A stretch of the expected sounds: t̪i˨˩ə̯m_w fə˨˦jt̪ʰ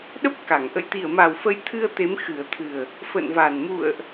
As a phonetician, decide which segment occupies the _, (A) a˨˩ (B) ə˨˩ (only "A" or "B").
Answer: A